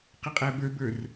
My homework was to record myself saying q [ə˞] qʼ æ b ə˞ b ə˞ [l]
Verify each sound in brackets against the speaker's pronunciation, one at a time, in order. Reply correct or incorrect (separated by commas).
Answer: incorrect, incorrect